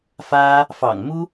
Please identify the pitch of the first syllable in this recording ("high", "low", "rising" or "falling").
high